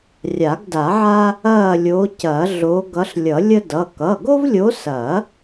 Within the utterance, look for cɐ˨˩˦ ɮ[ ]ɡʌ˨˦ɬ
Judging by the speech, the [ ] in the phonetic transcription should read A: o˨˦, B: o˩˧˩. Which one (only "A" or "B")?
A